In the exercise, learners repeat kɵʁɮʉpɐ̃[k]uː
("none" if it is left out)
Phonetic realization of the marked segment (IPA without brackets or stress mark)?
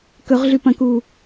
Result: k